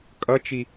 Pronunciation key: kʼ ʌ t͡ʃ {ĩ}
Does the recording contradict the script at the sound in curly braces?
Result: yes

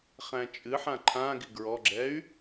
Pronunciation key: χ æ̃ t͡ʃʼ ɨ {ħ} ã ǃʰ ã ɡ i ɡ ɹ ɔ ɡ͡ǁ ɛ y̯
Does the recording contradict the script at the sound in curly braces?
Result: no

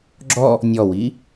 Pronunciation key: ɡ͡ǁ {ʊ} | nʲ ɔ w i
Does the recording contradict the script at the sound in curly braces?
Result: yes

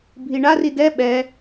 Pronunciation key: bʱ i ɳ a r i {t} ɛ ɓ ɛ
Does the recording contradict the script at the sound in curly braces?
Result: yes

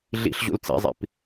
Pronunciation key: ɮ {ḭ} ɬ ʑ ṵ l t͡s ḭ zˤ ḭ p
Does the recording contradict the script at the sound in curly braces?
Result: no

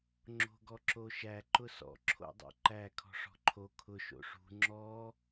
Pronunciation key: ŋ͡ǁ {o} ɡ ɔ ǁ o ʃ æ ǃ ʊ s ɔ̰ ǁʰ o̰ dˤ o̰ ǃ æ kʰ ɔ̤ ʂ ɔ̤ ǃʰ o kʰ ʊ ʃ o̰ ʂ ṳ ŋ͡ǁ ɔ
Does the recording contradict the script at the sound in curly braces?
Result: yes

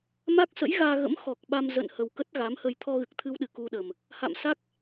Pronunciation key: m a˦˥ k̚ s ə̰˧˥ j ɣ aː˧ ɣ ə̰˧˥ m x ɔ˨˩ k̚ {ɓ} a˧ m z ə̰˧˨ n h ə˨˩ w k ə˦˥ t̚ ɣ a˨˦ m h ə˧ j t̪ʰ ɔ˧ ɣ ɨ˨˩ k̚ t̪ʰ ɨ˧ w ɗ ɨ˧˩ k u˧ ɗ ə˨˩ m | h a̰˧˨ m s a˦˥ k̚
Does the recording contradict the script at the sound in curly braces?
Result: no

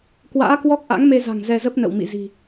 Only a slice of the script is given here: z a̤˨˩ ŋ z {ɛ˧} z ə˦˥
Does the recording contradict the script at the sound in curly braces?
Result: no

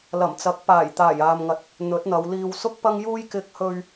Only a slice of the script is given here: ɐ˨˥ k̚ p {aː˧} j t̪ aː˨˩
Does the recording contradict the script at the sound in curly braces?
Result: yes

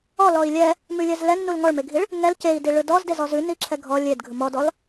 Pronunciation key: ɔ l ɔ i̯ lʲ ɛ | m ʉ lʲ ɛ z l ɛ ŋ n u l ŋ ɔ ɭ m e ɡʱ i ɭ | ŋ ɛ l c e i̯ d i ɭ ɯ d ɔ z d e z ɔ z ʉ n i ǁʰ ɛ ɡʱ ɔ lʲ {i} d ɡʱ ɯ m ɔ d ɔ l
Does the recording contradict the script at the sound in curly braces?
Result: yes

